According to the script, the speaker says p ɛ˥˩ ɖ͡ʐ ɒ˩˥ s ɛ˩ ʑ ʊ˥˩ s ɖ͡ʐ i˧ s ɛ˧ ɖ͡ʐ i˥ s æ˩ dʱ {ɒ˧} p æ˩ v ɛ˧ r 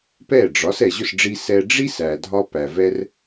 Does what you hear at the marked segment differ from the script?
no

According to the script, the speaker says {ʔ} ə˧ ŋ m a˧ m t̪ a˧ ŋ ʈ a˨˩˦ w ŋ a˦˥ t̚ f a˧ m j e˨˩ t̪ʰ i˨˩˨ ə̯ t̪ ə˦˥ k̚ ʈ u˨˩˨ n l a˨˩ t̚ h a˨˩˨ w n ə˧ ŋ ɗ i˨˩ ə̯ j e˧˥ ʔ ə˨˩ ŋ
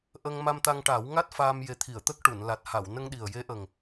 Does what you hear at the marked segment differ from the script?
no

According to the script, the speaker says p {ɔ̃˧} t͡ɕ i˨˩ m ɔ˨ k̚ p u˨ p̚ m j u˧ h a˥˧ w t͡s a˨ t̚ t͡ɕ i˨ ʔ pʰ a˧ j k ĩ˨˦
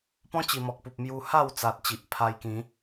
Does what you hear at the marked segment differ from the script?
yes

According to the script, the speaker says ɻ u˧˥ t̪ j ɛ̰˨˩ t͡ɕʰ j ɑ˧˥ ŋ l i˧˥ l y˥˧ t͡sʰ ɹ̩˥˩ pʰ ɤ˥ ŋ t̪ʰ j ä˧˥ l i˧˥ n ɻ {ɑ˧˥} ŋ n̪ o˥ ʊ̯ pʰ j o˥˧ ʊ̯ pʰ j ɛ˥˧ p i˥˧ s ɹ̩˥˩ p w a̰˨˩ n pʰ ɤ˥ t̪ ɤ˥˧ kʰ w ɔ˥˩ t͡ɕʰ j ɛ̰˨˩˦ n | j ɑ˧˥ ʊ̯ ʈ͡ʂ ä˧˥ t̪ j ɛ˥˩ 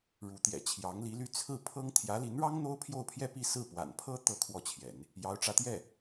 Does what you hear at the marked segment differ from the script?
yes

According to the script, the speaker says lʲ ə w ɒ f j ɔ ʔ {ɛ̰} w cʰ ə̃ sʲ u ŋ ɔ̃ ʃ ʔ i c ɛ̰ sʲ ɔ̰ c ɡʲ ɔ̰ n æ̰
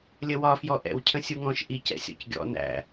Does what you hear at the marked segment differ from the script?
no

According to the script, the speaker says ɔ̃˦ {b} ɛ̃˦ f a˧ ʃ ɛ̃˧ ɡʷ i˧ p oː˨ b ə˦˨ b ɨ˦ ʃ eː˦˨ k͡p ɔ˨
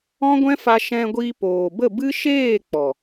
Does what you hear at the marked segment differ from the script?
yes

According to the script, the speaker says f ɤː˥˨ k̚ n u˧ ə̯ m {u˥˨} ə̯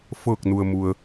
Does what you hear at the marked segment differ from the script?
yes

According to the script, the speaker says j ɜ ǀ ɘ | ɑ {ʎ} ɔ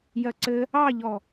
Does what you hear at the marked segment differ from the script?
no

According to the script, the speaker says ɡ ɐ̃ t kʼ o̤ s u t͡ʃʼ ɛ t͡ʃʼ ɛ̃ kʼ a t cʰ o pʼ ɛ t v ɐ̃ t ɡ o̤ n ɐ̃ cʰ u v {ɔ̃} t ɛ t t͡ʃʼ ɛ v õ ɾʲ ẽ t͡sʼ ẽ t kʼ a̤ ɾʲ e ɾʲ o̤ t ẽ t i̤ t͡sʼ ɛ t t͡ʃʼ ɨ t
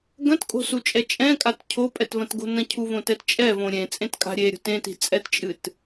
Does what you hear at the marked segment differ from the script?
yes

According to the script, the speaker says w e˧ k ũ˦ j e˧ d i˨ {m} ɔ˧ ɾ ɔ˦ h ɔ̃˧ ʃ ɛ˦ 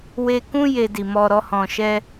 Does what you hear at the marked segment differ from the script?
no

